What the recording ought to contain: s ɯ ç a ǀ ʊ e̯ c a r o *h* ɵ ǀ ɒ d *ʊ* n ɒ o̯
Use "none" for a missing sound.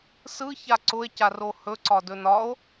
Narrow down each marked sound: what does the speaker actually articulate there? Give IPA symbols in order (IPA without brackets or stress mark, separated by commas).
h, ɵ